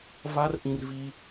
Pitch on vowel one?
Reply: high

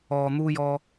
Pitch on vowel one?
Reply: low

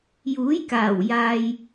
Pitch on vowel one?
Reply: rising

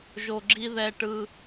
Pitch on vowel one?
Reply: low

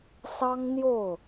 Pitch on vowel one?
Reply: high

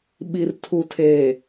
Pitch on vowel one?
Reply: low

